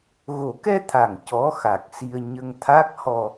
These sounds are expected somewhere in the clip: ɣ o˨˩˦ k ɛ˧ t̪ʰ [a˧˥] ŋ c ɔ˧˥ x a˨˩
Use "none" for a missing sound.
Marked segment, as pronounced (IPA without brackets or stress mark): a˨˩